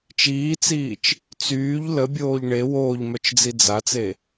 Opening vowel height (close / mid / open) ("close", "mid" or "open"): close